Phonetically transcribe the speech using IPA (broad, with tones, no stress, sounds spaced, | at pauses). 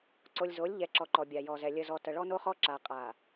ǀ o˨ lʲ z o˨˦ lʲ ʎ ɛ˨ ǁ ɔ˨ ǃ ɔ˨ bʲ a˨ j ɔ˨ z ɛ˨ lʲ ə˨ z ɔ˨ t ə˨ ɭ ɔ˦ n o˦ χ ɔ˦ ǁ a˨ qʼ a˨